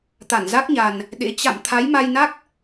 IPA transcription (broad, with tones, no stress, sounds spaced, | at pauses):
t̪ a˧˩ n z a˦˥ k̚ ɲ a˨˩ n | ɗ ḛ˧˥ t͡ɕ a̰˧˨ m t̪ʰ a˨˦ j m a˧ j n a˦˥ k̚